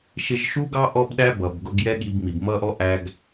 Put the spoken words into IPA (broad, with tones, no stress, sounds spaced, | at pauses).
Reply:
ʃ ɪ˧ ʒ ʃ u˦ ɡ ɑ˦ ʔ ɔ˦ b ɗ æ˦ b ʌ˨ b ɡ ʊ˧ ɡ j ɛ˦ ɠ i˧ b m i˨ b m ʌ˦ ʔ ɔ˦ ʔ æ˧ ɡ